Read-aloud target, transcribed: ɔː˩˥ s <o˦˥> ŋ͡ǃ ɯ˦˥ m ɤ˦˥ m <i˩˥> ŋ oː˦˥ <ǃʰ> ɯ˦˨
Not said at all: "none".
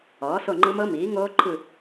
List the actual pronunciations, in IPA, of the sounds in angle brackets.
o˦˨, iː˩˥, ǃʰ

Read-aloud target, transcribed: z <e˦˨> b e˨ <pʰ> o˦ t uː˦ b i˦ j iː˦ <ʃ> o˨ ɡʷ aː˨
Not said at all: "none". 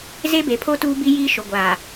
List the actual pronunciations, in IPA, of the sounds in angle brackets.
e˦, pʰ, ʃ

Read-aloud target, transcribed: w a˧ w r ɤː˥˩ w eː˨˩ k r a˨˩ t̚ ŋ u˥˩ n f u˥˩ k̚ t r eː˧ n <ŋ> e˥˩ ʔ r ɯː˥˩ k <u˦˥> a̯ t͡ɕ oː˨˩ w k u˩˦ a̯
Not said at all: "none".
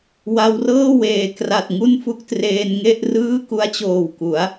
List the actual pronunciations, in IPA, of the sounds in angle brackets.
ŋ, u˦˥

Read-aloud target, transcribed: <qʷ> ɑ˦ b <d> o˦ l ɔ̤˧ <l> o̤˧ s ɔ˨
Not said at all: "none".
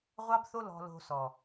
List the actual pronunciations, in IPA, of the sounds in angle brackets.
ʁʷ, θ, l

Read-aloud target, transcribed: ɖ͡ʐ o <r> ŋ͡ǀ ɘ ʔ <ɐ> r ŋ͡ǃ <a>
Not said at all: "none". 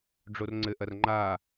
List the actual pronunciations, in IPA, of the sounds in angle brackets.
r, ɐ, a

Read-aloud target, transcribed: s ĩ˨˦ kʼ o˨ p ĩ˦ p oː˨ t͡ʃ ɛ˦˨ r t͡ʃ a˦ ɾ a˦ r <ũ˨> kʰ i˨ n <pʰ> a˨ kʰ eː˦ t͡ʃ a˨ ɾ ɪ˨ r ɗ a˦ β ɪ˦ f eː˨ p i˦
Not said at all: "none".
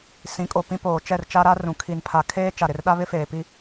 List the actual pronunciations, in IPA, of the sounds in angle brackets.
ũ˨, pʰ

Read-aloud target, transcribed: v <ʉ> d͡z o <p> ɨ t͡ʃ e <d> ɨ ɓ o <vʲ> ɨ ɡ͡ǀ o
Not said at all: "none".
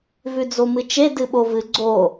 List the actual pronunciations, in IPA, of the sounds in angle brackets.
ʉ, m, d, v

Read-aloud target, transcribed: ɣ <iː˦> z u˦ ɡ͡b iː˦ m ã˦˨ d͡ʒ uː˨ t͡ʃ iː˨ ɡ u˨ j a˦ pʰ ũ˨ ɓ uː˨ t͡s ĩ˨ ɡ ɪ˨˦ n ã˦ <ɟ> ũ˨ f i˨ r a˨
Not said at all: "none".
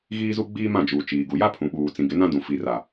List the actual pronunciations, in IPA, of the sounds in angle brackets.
iː˦, d

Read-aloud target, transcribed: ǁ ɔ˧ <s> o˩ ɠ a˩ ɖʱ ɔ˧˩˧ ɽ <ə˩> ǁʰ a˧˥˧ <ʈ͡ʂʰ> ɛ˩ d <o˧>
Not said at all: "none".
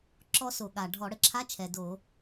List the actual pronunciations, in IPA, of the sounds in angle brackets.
s, ə˩, t͡ʃʰ, o˧˩˧

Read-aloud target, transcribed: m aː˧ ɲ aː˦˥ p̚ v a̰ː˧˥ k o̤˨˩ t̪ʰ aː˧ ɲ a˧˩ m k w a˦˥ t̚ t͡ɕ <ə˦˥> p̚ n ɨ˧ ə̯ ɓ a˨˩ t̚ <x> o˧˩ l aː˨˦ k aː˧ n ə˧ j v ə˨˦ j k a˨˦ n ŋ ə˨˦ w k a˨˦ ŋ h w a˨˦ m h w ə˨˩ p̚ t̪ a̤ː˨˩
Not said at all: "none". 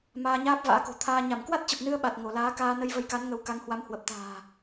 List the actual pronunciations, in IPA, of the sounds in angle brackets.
ə˨˩, ŋ

